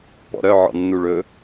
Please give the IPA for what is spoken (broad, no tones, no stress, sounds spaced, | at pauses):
p ɔ̰ ɾ œ ʕ ɔ̰ nː u ɭ ɵ